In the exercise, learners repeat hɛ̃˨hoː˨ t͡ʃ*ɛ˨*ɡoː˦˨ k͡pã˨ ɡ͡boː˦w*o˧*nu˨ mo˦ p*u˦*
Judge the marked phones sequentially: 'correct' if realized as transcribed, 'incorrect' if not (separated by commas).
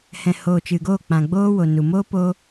incorrect, incorrect, incorrect